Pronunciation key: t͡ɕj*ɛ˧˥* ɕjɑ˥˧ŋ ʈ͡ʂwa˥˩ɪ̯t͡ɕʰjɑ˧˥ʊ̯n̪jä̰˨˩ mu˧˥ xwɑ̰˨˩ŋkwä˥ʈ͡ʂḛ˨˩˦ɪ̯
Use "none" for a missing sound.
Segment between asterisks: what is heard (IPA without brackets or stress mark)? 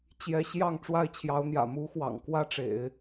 ɛ˧˥